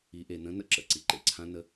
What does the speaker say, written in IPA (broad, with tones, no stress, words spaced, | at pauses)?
i˩˧ʔe˩nə̃˧˥ nə̰˥ ǁə̰˩ ǀi˩ǃḛ˧ǀʰã˧˥ nə˧